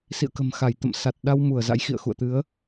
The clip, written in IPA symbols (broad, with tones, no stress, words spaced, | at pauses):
sḭ˧˨ə̯kə̤˨˩m xa˧˩j t̪ə̰˧˨msa˨˩t̚ɗa˧w mu˧˩ə̯za̰˧˥jxḭ˧˨ə̯ xṵ˧˨ə̯t̪ɨ˨˦ə̯